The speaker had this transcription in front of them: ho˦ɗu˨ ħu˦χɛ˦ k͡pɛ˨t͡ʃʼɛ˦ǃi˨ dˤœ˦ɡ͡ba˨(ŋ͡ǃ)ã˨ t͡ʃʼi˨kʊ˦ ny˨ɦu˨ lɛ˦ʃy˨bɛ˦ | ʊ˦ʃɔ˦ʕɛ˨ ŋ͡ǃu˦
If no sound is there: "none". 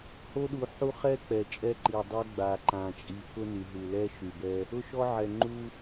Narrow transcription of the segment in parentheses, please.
ǃ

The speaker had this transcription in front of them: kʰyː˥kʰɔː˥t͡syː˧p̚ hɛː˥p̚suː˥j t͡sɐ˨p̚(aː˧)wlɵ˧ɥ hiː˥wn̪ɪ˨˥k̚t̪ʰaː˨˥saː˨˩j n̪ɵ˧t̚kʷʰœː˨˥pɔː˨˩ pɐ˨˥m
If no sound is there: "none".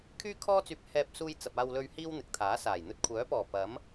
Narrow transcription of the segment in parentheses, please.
aː˧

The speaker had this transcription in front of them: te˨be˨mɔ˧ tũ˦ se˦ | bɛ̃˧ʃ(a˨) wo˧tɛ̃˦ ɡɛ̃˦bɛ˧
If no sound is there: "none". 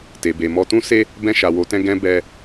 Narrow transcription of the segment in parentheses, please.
a˨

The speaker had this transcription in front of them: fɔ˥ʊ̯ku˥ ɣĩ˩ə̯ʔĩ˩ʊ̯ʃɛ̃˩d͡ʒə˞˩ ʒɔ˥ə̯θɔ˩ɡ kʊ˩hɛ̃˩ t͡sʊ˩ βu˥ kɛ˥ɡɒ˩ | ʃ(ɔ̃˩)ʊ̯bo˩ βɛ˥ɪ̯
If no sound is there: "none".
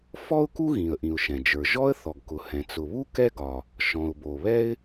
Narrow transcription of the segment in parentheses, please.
ɔ̃˩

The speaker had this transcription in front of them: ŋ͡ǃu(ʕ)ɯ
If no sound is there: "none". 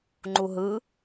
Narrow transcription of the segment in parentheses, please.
ɦ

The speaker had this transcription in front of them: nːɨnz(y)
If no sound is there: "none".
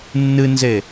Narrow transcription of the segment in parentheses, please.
e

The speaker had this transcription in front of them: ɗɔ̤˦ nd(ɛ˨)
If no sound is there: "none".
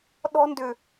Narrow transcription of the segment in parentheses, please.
ʏ˨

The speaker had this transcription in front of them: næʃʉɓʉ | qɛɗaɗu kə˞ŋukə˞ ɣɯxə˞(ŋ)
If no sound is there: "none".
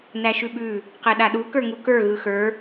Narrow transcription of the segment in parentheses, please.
none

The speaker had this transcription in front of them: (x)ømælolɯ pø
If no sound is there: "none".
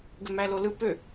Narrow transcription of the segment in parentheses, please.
ɡ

